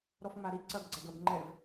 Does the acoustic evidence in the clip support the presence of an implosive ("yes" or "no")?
no